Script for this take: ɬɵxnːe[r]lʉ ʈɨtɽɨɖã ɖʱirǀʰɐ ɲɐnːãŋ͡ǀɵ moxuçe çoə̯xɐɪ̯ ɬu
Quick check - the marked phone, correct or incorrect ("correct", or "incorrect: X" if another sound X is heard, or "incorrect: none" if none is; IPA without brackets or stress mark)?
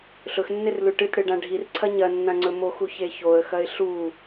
correct